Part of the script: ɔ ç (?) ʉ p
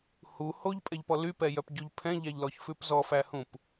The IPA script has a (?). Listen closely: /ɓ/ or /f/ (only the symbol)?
f